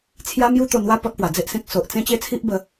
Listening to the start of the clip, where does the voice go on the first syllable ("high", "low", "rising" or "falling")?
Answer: high